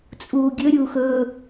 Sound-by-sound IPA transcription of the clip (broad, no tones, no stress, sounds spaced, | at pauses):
t͡sʼ uː ɡʲ ɵ ɾʲ uː x ɵ